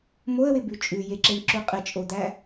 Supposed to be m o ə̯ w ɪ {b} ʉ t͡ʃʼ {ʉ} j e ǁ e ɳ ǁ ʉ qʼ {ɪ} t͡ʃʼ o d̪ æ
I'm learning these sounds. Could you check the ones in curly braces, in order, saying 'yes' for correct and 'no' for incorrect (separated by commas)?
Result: yes, yes, yes